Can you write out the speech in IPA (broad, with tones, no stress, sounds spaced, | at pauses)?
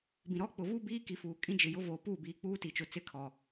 b ĩ˨ ɾ ɔ˦ k͡p ʊ˨ v uː˦ b iː˦ k i˨ f uː˨ kʼ ĩ˦ d͡ʒ ɪ˨ j ʊ˦ v oː˨ p uː˦˨ b iː˨ k͡p uː˦ t i˨ t͡ʃ ʊ˨ t͡s ɪ˦˨ kʰ ɔ˨